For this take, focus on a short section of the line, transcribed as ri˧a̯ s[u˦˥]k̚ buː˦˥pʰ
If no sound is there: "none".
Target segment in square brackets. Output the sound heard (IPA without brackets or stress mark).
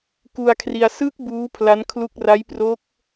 ɯ˦˥